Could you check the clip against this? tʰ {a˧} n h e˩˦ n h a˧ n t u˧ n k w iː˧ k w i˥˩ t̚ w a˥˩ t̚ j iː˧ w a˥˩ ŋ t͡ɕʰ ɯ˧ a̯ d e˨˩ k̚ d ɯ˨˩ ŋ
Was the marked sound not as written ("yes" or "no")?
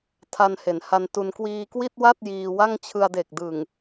no